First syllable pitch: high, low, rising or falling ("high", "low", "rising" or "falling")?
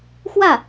falling